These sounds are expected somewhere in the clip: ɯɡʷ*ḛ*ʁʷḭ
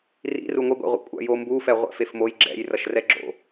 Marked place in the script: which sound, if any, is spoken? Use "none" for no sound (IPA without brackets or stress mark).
ḭ